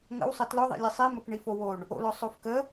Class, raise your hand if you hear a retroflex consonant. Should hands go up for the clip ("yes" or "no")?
yes